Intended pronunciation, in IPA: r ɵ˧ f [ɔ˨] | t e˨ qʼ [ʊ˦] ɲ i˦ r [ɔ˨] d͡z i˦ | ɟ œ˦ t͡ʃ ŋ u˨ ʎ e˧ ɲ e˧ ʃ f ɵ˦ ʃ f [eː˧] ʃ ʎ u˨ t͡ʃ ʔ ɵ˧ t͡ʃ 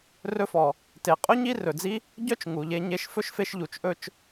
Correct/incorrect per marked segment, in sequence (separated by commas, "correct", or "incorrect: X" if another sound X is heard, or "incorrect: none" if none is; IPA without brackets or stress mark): correct, incorrect: ɵ˦, incorrect: ɵ˨, incorrect: e˧